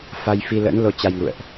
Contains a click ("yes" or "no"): no